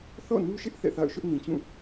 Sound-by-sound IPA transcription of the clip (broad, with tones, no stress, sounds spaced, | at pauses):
θ ɔ̰˦˨ n u˦ ʃ ɪ˦ ʔ θ ɛ̰˦˨ θ a̰˦˨ ʊ̯ ʃ ʊ˦ ʔ n ĩ˨ t͡ɕ ũ˦˨